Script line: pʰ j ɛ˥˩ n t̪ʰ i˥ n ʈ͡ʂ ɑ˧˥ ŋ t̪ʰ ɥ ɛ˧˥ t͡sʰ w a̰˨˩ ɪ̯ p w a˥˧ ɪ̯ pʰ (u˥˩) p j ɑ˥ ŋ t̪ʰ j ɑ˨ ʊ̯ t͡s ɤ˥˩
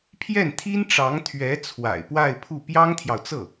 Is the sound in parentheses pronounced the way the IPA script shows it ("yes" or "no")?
yes